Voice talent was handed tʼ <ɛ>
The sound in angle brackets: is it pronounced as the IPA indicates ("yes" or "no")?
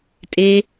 no